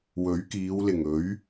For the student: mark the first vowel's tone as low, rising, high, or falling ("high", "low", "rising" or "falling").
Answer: rising